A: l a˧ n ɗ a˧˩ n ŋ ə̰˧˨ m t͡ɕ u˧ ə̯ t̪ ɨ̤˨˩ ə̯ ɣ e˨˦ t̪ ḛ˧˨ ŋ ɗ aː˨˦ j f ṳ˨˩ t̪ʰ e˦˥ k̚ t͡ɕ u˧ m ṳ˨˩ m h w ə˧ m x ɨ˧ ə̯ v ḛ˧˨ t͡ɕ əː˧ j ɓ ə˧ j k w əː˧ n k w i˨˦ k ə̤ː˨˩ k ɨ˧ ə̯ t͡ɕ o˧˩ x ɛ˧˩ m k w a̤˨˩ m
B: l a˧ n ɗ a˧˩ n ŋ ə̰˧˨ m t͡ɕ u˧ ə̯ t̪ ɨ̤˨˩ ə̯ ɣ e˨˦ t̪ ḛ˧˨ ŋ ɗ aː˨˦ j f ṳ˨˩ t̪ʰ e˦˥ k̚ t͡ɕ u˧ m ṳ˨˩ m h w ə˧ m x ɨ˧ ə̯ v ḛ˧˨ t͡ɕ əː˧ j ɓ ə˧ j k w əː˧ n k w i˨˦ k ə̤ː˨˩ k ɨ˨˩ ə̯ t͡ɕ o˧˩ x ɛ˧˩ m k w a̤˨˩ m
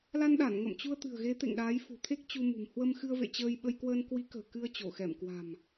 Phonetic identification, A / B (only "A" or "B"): A